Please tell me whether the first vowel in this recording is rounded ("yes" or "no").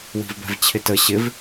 no